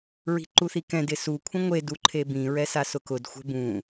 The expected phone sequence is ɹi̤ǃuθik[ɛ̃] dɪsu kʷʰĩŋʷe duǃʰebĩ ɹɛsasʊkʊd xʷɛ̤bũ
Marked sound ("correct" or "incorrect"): correct